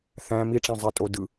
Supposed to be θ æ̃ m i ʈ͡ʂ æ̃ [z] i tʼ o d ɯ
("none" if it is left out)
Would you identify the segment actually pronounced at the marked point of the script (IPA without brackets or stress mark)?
zˤ